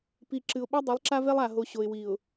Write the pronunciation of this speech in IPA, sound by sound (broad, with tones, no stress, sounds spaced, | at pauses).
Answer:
p i˨ ǁ ɨ˨ ʊ̯ ɓ ɛ˦ dˤ i˨˦ lˠ ǁ a˦ v ɛ˦ lˠ a˨ ɦ o˨ ɕ o˨ ɪ̯ w i˨ ʊ̯